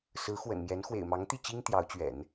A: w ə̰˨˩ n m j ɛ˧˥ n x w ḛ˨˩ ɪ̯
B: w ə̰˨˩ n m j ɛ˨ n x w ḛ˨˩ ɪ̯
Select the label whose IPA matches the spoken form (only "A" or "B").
A